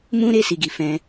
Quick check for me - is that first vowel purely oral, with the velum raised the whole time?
no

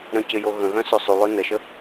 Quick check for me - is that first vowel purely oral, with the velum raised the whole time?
no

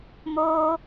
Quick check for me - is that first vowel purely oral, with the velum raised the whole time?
yes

